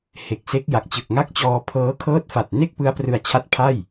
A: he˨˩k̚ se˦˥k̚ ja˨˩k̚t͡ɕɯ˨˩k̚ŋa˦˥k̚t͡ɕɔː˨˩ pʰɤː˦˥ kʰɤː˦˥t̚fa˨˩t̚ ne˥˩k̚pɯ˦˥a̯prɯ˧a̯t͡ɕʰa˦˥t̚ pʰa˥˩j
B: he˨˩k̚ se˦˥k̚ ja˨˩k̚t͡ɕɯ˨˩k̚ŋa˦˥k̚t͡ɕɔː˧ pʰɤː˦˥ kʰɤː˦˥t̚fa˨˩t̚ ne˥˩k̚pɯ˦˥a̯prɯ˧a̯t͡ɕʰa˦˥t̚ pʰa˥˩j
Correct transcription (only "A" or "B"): B